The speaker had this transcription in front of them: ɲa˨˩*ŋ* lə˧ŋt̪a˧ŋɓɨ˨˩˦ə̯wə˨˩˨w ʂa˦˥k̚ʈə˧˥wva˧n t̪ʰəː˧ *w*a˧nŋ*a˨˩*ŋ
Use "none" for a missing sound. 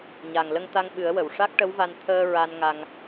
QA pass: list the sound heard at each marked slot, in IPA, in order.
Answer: ŋ, ɹ, a˧

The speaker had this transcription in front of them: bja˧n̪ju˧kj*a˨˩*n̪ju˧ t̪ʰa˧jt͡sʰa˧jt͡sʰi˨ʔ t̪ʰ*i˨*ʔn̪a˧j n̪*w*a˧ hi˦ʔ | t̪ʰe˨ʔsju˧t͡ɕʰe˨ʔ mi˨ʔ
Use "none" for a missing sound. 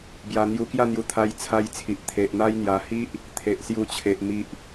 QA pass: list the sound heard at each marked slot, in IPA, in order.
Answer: a˥˧, e˨, j

